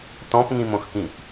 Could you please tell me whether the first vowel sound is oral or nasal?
nasal